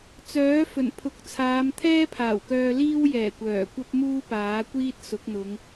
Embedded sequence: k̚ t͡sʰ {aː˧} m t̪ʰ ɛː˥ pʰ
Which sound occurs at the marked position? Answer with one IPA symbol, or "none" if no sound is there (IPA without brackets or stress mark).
aː˨˧